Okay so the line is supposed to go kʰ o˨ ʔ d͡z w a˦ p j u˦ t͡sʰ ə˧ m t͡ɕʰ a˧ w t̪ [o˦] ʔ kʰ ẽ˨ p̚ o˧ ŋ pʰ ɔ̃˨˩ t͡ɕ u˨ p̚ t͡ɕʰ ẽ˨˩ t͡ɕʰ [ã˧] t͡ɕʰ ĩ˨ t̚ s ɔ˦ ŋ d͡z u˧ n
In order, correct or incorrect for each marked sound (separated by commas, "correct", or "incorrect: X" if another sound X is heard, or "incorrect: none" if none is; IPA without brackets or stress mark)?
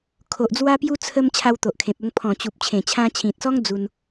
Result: incorrect: o˨, correct